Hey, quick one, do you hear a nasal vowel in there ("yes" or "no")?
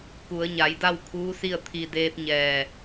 no